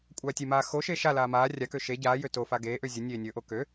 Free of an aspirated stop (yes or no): yes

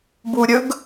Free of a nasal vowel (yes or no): yes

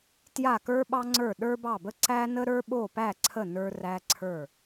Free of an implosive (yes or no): no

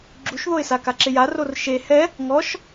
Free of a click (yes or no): no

